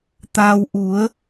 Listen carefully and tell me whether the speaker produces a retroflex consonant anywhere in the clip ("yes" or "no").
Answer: no